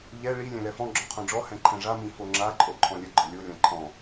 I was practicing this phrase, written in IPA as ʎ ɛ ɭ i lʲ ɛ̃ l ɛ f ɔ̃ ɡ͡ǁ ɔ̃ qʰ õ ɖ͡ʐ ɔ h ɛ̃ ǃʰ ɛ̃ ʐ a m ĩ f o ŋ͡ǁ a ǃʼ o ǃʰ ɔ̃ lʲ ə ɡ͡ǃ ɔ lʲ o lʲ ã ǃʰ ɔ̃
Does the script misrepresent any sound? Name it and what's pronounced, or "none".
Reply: none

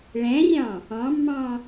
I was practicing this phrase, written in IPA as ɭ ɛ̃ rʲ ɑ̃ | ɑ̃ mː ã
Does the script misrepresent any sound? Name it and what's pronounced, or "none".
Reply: ã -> ɑ̃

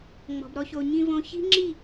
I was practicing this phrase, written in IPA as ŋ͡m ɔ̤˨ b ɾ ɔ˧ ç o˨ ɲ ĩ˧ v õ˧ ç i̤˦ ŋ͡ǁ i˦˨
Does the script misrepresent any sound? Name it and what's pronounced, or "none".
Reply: none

